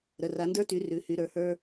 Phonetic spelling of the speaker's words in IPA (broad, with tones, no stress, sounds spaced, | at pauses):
ɾ ə˩˧˩ r a˨˦ n d ə˞˥ t y˨˦ r ʉ˩˧˩ h y˨˦ ɾ ə˞˩˧˩ h ə˞˥